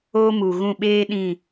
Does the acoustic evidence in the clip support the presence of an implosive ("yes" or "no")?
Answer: yes